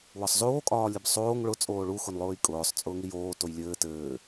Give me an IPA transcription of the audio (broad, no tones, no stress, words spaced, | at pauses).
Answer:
wɒsˤzoː kʼɒːlʲɘbsˤoːŋ ɭʊ t͡sʼoːɭu xʊnlˠʊːjkʼʊːsˤ t͡sʼʊːŋijoː tojlʲɘː tɘː